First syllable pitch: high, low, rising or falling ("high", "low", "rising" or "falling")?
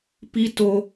high